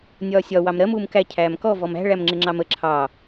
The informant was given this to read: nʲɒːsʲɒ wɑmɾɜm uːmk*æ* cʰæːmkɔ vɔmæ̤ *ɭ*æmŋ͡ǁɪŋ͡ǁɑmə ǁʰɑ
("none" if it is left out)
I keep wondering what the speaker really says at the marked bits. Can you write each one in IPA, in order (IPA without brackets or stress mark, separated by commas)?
æ, ɭ